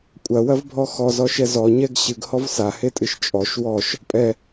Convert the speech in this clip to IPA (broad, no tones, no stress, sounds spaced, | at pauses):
kʷʼ ɐ w ɐ v bʱ ɔ x ɔ z ɔ ʃ ɛ z ɔ ɲ ɛ ɡ ɕ ɨ ɡ h ɔ v s a h e tʼ ɨ ʃ t͡ʃʼ ɔ ʃ w ɔ ʃ | pʼ ɛ